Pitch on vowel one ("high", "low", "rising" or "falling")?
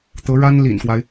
rising